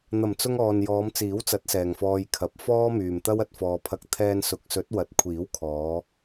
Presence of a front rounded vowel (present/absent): present